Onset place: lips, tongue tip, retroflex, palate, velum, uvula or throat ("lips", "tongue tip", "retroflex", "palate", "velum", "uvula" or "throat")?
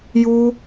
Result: palate